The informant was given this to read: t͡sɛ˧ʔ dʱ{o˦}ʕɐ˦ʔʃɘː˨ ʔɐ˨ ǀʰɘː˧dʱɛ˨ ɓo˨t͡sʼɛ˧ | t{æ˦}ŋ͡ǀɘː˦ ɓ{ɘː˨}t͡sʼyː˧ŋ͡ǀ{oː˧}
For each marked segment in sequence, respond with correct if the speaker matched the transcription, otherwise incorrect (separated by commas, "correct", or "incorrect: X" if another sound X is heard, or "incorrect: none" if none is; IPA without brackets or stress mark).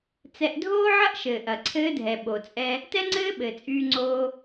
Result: incorrect: oː˦, incorrect: ɛ˦, correct, correct